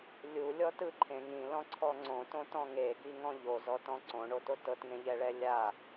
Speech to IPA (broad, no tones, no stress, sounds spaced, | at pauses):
lʲ u lʲ ɔ t ɯ ǃʰ ẽ ŋ ĩ l ɔ̃ ǀʰ ɔ ŋ͡ǀ õ t õ t ɔ̃ ŋ e ɡ i ŋ ɔ̃ ʎ o z ɔ t ɔ̃ ǀ õ ɳ o t o t ɤ t ŋ ẽ ʎ ɛ ɭ ɛ lʲ a